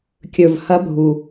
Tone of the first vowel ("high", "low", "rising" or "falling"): low